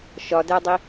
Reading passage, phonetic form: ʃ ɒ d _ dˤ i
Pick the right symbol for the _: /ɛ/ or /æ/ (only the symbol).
æ